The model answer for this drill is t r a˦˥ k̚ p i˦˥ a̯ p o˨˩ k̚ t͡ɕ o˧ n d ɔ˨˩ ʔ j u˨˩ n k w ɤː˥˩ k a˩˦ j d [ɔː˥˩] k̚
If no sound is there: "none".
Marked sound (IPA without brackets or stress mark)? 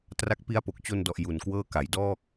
ɔː˥˩